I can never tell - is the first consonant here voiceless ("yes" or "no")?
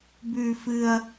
no